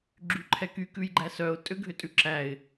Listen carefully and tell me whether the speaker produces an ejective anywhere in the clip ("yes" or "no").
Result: yes